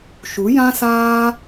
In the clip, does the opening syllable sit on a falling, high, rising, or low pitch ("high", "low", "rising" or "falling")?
rising